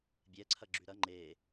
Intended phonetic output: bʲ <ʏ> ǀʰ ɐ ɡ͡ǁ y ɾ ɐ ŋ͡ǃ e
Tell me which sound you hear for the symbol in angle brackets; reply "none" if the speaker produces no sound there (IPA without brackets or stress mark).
ɛ